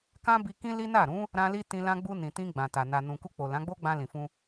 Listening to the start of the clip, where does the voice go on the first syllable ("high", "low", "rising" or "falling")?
high